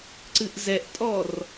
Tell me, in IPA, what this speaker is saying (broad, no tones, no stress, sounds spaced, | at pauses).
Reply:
ǀ ɨ ʔ z ɛ ʔ tʼ ɔ r